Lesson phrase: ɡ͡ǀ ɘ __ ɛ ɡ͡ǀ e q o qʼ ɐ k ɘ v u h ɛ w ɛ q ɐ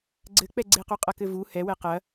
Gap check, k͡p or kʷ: k͡p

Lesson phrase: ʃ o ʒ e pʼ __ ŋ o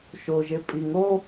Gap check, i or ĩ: i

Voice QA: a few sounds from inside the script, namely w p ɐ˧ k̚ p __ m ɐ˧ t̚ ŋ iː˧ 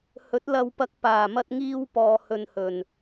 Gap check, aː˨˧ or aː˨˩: aː˨˩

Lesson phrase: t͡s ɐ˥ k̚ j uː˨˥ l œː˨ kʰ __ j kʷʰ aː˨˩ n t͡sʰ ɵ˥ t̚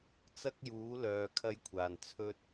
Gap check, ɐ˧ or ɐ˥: ɐ˥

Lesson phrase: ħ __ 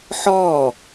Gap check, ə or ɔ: ɔ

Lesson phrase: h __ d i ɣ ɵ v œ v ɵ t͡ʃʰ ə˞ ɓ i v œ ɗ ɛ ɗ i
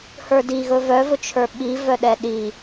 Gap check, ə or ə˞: ə˞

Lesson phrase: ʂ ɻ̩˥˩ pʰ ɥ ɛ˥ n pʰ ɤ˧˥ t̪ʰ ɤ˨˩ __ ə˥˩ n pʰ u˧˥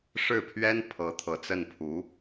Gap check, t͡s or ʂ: t͡s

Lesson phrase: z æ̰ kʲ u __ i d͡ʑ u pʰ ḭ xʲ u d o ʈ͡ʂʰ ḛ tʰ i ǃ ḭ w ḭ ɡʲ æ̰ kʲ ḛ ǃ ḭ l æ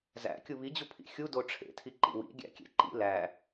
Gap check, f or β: β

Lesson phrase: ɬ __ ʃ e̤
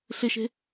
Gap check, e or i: e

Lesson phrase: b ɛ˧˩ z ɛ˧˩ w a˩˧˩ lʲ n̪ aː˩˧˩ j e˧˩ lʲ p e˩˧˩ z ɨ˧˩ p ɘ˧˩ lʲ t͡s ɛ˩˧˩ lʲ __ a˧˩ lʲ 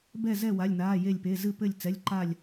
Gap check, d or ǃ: ǃ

